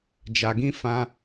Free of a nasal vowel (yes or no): no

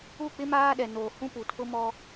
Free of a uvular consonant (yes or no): yes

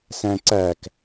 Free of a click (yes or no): no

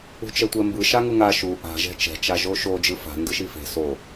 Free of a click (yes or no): yes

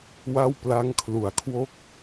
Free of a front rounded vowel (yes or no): yes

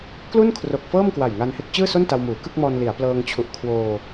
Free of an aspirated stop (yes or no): no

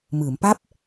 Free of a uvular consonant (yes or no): yes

